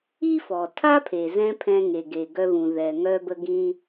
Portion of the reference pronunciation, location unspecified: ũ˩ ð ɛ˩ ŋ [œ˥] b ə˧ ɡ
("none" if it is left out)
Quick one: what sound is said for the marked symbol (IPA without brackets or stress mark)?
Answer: œ˧